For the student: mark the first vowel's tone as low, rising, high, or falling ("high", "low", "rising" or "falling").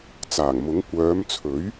low